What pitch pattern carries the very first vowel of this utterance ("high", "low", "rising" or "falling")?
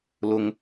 high